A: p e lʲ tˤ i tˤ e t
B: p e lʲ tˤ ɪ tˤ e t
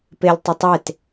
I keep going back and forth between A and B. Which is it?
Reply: B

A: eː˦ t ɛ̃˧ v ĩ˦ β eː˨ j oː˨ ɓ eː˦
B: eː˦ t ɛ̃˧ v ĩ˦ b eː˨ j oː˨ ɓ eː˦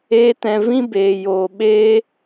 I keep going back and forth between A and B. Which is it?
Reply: B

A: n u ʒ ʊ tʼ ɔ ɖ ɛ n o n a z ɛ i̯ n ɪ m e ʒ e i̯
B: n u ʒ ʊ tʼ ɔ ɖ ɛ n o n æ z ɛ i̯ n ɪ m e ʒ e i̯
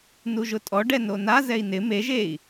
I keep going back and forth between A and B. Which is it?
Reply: A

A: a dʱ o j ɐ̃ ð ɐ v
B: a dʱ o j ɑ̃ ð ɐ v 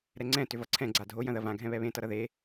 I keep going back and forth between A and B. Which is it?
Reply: A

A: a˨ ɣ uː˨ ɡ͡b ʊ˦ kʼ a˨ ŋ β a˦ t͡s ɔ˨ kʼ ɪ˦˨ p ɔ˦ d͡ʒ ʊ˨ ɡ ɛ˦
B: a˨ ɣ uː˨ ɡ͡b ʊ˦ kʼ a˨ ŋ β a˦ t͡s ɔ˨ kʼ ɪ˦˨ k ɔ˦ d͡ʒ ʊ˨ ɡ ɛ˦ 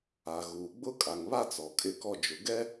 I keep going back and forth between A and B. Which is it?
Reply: B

